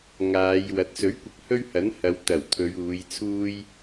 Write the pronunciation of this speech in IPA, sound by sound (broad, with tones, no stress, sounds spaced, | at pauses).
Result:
ŋ aː˨˧ j w ɐ˨˥ t̚ s ɵ˨˥ ɥ kʷ ɐ˨ k̚ h ɵ˥ ɥ h ɐ˨˥ n h ɐ˨ w t̪ ɐ˨˩ w t̪ʰ ɵ˨˧ ɥ uː˨˧ j t͡sʰ uː˥ j